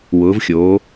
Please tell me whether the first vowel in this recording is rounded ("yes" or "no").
yes